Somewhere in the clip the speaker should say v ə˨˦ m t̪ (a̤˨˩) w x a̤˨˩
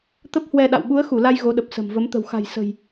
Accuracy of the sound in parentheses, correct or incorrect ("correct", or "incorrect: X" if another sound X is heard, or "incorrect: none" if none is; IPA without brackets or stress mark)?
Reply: incorrect: ə̤˨˩